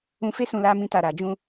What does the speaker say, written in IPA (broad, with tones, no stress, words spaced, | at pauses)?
ũ˧fe˦sũ˧ la˦mĩ˦ta˧ ɾa˨d͡ʒũ˧